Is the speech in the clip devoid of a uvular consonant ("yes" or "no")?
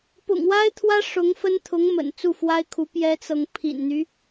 yes